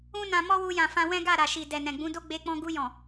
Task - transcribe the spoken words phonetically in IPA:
ũ˦nã˧mɔ˦ wu˧jã˨fã˧ wɛ̃˦ɡa˦˨ɾa˨ʃi˨ dɛ˨nɛ̃˨ɡ͡bũ˨˦do˦ ɡ͡be˧ k͡pɔ̃˧ɡu˧jɔ̃˨

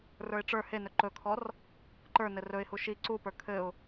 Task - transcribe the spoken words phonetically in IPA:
rə˞ɪ̯ʈ͡ʂə˞ henɵ ǃɵkʰɔr | ǃə˞nɘ rɵɪ̯hu ʃi ǀupə˞ kʰɘʊ̯

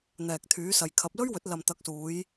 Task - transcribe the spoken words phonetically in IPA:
n̪ɛː˨k̚t̪ʰyː˨˥sɐ˨jkʰɐ˨˥p̚ lɵ˥ɥwɵ˨˥t̚ lɐ˨mt̪ɐ˨˥k̚suː˨˧j

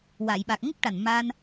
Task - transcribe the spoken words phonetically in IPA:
wa˨˩˨jɓa˨˩k̚ ŋə˦˥k̚ʈa˨˩nma˧n

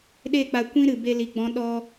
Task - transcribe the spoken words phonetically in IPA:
ɗe˦˨k͡pa˧ kʷĩ˦ɾɨ˨ be˧li˨ɡ͡bɔ̃˨˦ ɗɔ˧

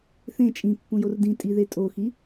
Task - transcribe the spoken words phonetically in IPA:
θẽ t͡ʃʼĩpːũjor dĩtʼiðe tʼoxi

